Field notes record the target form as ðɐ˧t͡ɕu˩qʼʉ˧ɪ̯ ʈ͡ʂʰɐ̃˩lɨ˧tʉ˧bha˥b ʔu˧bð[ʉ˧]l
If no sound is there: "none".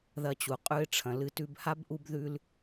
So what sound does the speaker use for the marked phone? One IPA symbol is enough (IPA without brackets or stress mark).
ʉ˧